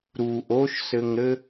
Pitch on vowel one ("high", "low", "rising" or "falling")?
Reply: low